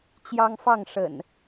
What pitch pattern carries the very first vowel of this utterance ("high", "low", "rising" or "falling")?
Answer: high